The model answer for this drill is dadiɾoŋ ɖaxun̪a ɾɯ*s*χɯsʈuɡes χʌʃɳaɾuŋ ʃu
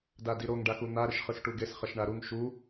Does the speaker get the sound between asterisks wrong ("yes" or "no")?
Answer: yes